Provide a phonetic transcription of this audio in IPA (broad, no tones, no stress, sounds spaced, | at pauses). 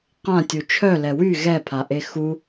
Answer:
q ã tʲ u t͡ʃʰ œ l ɛ w y ɣ ɛ pʰ a ʔ e x u